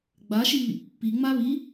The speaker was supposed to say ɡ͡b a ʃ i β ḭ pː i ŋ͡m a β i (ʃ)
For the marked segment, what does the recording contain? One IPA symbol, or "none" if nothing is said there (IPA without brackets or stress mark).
none